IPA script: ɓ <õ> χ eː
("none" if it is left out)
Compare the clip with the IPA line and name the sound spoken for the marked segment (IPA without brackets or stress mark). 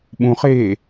ũ